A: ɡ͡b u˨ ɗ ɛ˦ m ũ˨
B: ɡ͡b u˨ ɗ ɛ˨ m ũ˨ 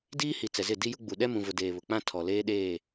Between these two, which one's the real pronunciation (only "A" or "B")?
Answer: A